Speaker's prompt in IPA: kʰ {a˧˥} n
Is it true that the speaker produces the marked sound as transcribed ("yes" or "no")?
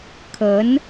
no